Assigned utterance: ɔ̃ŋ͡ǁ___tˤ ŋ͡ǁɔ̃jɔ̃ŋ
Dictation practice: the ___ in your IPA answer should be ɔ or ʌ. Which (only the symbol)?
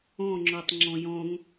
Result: ɔ